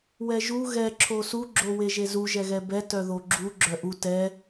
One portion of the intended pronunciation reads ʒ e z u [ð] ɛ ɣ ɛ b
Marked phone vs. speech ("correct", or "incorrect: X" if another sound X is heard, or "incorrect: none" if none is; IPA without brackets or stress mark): incorrect: ʒ